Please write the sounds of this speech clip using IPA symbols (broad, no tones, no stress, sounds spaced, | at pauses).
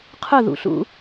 qʰ ʊ ð ṵ ɬ ṵ